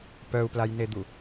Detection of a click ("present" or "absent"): absent